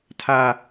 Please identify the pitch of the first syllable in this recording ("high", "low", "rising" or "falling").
high